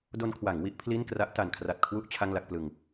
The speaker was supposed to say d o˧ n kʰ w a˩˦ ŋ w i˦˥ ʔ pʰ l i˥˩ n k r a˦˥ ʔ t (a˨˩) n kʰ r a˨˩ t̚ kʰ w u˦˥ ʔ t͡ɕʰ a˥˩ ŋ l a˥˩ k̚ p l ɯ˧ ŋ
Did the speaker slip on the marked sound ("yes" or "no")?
no